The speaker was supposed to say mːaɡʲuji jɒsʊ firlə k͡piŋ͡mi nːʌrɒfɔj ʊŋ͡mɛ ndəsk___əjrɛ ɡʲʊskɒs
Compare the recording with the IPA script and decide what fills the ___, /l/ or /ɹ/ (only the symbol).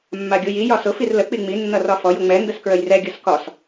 ɹ